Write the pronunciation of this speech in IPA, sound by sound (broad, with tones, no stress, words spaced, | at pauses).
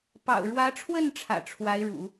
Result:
pɑ̰˨˩ʊ̯ɻwä˧˥ʈ͡ʂʰwə˥˩n ʈ͡ʂʰä̰˨˩ʈ͡ʂʰwa˧˥ɪ̯ɻṵ˨˩˦